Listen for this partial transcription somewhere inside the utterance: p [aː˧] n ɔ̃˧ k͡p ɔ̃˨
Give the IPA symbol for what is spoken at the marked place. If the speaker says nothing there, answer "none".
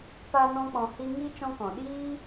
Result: a˧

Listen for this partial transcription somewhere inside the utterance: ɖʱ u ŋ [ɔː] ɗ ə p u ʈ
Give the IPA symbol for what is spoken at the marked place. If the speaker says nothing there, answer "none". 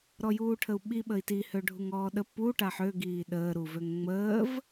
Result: ɔː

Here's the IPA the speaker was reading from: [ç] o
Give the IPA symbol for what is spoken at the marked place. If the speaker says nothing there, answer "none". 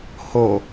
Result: h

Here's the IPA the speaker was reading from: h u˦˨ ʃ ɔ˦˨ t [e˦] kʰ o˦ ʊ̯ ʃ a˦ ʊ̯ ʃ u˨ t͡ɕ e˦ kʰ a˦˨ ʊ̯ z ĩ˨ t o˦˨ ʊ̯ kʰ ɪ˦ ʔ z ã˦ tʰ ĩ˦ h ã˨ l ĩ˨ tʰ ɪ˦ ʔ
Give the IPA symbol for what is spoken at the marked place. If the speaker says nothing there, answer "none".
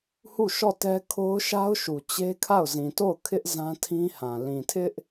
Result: ɛ˦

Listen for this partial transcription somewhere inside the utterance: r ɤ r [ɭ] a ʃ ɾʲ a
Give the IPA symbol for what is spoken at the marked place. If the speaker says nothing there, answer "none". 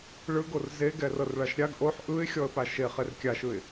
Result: ɭ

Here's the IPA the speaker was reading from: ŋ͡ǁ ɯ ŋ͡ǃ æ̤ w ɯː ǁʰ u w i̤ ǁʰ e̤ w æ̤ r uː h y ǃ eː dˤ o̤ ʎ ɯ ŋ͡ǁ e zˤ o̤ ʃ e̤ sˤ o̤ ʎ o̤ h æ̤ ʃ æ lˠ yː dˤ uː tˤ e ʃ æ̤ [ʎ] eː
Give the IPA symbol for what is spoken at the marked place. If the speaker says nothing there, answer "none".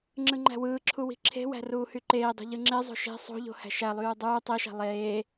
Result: lˠ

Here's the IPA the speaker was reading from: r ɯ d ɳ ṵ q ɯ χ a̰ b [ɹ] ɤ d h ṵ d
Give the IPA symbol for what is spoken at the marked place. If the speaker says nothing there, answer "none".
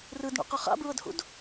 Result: ɹ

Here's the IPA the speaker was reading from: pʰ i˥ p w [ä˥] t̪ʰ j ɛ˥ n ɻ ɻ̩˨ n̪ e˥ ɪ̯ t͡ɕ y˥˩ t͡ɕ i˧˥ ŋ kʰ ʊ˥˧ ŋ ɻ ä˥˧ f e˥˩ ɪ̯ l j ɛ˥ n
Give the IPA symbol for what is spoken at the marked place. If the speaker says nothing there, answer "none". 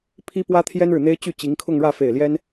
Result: ä˥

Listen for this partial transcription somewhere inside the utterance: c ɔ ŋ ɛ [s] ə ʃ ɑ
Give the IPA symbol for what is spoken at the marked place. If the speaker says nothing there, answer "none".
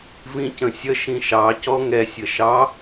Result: sʲ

